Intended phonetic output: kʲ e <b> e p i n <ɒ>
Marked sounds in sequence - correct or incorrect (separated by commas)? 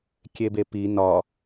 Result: correct, correct